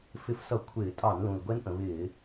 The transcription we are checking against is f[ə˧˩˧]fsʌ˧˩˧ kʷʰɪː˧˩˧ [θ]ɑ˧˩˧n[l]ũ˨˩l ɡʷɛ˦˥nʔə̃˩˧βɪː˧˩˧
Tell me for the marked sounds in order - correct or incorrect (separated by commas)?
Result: incorrect, incorrect, correct